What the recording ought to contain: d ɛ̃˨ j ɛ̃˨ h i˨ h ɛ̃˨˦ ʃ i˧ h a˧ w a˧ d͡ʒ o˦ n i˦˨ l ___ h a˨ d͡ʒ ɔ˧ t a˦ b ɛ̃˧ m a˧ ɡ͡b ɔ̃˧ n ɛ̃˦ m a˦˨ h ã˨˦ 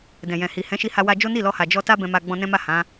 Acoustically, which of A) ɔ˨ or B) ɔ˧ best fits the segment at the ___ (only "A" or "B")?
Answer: B